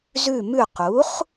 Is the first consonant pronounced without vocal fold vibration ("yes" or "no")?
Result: no